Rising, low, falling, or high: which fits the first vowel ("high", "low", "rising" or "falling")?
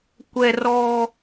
high